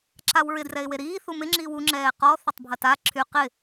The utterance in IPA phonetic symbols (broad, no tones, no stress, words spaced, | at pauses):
ǁawɹɪ drɛɪ̯weɾiː θumɪ ŋ͡ǁiwu ŋ͡ǁɛːqɔ θʏtˤbʱɐta ǁʰy qɪ